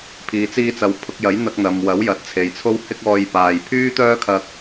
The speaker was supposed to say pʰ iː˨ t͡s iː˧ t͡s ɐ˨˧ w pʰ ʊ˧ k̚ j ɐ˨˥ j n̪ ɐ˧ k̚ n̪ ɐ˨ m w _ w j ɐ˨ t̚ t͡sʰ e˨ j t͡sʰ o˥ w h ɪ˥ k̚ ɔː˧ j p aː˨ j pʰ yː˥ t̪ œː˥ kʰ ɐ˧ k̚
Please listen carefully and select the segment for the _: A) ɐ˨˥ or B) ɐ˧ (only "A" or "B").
A